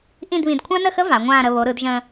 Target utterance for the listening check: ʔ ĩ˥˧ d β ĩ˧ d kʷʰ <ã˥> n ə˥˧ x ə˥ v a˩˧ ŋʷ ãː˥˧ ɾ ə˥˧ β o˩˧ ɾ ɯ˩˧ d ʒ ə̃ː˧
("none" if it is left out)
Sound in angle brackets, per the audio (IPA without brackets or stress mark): ã˥